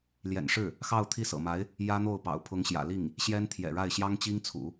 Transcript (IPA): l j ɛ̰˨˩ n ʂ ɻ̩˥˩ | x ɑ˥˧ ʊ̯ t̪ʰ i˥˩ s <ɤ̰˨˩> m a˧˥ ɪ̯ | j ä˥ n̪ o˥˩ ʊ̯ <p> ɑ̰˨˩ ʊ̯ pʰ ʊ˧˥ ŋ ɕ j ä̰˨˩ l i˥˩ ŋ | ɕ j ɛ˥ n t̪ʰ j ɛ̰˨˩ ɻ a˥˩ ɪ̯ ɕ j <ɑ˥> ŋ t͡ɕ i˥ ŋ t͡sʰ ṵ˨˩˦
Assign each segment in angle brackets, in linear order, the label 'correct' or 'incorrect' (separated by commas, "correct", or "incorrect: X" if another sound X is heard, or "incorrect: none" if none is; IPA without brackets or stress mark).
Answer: correct, correct, correct